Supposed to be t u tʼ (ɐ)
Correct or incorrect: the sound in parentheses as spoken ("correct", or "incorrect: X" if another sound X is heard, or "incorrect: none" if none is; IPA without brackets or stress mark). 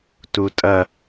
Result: correct